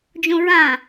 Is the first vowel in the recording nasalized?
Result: yes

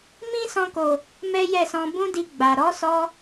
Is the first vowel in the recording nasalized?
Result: yes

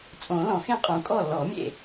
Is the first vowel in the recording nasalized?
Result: yes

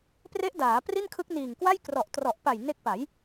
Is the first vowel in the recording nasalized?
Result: no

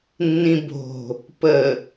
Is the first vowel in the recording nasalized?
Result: yes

